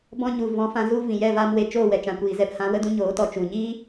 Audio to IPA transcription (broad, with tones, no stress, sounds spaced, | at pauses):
b ɔ̃˧ ɲ u˨ v ɔ̃˨˦ f ã˧ z u˧ v ĩ˨ j ɛ˦˨ v aː˧ m w e˧ t͡ʃ oː˦˨ w ɛ˨ t͡ʃ ã˨ kʷ iː˨ z ɛ˧ p h ã˨˦ w ə˧ d ũ˧ ɲ oː˨˦ t ɔ˨ t͡ʃ u˨ ɲ iː˦